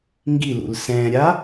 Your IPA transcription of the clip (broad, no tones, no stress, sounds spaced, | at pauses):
ŋ ɡ i l ṵ l s ɛ̃ː ɾʲ a